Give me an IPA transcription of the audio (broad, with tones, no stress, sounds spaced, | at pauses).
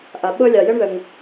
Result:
ʔ a˧ ɓ ɤ˥ lʲ ɑ˧ j ə˥ ɳ ð ə˧ ŋ